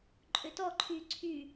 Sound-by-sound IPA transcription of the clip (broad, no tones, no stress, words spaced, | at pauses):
ǃʼøtɔǃʰyː ǀʰy